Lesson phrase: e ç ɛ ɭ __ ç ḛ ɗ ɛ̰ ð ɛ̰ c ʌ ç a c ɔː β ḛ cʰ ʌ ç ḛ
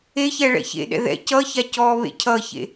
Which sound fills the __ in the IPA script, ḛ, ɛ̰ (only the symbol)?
ɛ̰